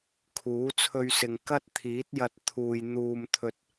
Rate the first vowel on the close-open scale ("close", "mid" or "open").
close